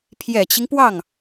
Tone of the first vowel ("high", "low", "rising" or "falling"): low